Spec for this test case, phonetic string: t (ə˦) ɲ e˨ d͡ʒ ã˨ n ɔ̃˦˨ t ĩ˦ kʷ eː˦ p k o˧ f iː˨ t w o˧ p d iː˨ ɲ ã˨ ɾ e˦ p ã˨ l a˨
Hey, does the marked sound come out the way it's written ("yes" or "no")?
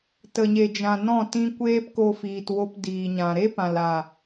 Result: no